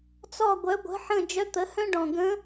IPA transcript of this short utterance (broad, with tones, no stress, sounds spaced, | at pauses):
t͡s ɔ˦˨ ɡʷ œ˩˥ ɡʷ ə̤˩˥ ħ ə̃˦˨ d͡ʒ œ˧˥ t̪ ə˩˥ h œ̃˥ ɖ ɔ̃˨˩ ɡ ə̃˧˥